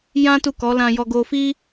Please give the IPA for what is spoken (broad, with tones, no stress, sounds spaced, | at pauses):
j ã˦ t u˦˨ k ɔ˨˦ l ã˧ j ɔ˧ ɡ o˧ f i˦